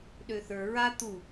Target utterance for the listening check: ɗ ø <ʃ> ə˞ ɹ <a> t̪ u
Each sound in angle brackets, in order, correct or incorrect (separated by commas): incorrect, correct